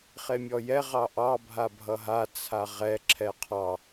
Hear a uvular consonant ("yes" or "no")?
yes